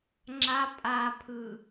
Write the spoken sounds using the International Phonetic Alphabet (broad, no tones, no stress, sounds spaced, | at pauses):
ŋ͡ǁ a pʼ a pʰ ɯ